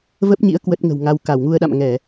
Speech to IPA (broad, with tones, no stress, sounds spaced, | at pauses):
v ə˦˥ p̚ ɲ ḭ˧˥ ə̯ k w ə˦˥ t̚ ŋ ə̤˨˩ w ŋ a˧ w k a˧˩ w ŋ u˧ ə̯ ɗ a̰˧˨ m ŋ ɛ˧˩˨